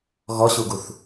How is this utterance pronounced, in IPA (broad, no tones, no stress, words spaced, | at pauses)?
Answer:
ɣɔɕuɡuθ